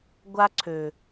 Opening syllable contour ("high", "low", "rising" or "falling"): high